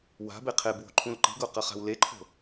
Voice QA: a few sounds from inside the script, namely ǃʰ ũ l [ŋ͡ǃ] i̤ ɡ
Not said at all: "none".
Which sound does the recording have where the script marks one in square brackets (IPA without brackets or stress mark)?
ǃ